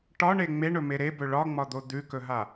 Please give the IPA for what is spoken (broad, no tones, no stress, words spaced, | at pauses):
ʈɒɳe ŋ͡meɳɵme ɾebɵ ɭɒŋ͡mɒd̪o d̪ʉkɵɦa